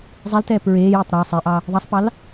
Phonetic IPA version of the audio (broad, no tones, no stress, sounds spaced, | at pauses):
zˤ ɛ l t ɛː p ɹ eː j o tˤ ɾ ɑ sˤ e ʔ ɑ | ðˤ ɑ sˤ p ɑ l